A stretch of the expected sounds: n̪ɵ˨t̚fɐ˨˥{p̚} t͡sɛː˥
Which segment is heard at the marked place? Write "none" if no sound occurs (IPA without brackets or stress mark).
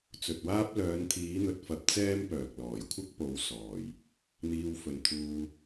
p̚